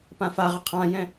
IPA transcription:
p ã f a ʁ ɪ qʰ ã j ɛ̃

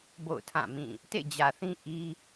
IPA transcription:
b o̰˦˨ ʊ̯ tʰ ã˦˨ m ĩ˦˨ | t ḛ˦˨ d͡ʑ ä˨ θ ĩ˦ ʔ i˦

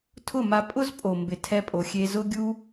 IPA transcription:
tʰ ʊ˦˨ m a˧ pʼ ʊ˦ z pʼ o˨ m b ɪ˨ tʰ ɛ˧ pʼ o˨ xʲ e˧ z ʊ˦ ɡʲ u˦

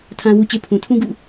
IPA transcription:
tʰ ã˦ w u˦ t͡ɕ e˦ pʰ ũ˨ tʰ ũ˦ ɡ ṵ˦˨

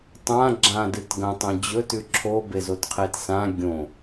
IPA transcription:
tˤ ã ɡ͡ǁ ã d ɨ t ɡ ɐ̃ tˤ õ d͡ʑ ɵ t ʉ ǁʰ o b e z o t qʰ e t s ã ɡʲ õ

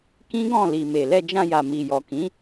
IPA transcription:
k ĩ˦ ɡ ɔ̃˦˨ l i˨ m e˨ l ɛ˧ d͡ʒ ã˧ j a˨ m i˨ j ɔ˨ k ĩ˨˦

